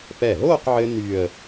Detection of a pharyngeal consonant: present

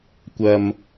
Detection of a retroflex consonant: absent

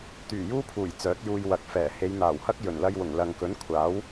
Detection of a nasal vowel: absent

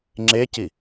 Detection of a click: present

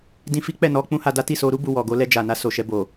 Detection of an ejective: absent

